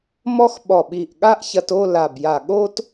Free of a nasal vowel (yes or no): yes